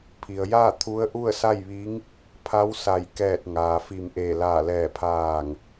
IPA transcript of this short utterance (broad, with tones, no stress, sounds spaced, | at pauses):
pʰ i˩ ə̯ j aː˥˨ t̪ʰ u˧˥ ə̯ ʔ u˥˨ ə̯ s a˥˨ j ʋ i˧˥ ŋ | pʰ a˧˥ w s a˧˩ j k ɛː˧˩ t̚ ŋ aː˩ f i˧˩ m ʔ eː˧˩ l aː˧˩ l ɛː˧˩ pʰ aː˧˩ ŋ